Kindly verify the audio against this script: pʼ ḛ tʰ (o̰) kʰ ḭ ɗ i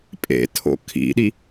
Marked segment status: correct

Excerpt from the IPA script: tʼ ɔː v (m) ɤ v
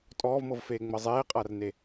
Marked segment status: correct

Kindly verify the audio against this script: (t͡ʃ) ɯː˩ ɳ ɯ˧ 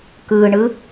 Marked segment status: incorrect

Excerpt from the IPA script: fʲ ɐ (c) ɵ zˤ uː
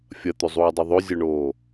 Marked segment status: incorrect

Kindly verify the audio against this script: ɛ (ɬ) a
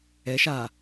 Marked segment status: incorrect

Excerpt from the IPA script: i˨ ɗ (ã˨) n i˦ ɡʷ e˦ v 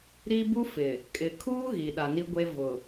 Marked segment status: incorrect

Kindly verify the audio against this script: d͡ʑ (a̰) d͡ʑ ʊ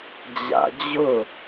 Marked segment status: correct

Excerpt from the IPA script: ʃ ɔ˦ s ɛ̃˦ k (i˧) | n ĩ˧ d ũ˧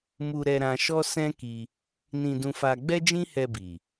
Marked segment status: correct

